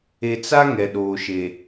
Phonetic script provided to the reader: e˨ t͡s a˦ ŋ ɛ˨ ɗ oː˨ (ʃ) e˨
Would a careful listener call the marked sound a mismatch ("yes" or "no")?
no